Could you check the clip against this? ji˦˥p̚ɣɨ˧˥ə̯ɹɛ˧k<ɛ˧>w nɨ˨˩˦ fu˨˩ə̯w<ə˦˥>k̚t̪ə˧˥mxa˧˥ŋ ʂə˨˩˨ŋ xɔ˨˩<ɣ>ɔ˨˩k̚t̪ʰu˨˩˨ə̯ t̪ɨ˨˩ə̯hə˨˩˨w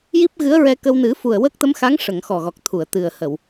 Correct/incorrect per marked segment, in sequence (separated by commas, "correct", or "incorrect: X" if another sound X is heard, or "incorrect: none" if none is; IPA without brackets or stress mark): incorrect: ə˧, correct, correct